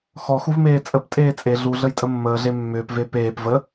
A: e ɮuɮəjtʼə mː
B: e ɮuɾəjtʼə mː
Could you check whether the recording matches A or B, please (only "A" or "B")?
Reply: A